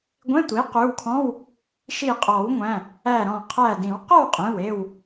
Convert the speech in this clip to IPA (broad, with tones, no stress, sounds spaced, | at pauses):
ɡʷ ẽ˧˥˧ tʷ i˩˥ q ʉ˩˧˩ w kʰ ɔ̃˧˥˧ w | ʃ i˧˩ qʼ ɔ˨˩˦ w ŋʷ æ̃˩˧˩ | æ˧˩ ɾ ɔ̃˧˩ qʰ æ˧˩ d ĩ˨˩˦ w q ɔ˥˨ w qʼ ẽ˩˧˩ w e˥˨ w